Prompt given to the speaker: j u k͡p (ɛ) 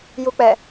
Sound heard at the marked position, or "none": ɛ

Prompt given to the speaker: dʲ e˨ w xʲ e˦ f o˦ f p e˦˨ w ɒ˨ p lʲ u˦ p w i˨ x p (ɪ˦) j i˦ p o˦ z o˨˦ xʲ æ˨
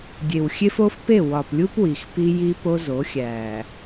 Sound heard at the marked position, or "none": i˦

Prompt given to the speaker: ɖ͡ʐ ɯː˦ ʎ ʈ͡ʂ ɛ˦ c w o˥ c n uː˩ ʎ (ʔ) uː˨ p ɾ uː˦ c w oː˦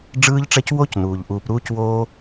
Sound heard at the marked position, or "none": ʔ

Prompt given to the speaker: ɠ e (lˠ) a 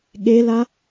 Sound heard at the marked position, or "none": l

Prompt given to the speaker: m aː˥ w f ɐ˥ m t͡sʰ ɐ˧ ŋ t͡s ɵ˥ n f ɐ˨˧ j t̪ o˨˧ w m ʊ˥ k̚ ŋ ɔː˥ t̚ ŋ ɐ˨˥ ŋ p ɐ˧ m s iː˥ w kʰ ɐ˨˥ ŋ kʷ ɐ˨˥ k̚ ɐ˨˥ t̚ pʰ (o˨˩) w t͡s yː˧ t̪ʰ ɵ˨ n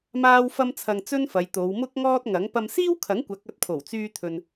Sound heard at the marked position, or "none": o˨˩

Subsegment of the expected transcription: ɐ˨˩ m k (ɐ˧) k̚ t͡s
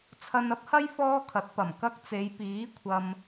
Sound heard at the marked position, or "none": ɐ˧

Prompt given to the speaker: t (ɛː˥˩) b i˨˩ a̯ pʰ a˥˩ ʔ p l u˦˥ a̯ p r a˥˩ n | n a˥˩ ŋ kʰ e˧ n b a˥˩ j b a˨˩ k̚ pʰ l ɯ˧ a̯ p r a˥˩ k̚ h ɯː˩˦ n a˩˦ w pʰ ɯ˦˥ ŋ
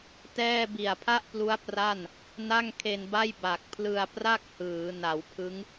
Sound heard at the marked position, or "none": ɛː˥˩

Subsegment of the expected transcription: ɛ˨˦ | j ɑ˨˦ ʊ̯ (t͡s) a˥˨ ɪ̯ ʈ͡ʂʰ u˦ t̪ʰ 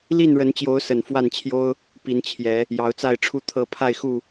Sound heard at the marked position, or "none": t͡s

